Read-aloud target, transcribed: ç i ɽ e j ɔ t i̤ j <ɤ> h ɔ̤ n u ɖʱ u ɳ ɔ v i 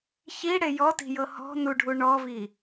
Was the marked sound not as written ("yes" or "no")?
no